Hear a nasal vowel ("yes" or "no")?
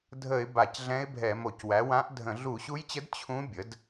yes